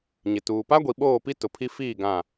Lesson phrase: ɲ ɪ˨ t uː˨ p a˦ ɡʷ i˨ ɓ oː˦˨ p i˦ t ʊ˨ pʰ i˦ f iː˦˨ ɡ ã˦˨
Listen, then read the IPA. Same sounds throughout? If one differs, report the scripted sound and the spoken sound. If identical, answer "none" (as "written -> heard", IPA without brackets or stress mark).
none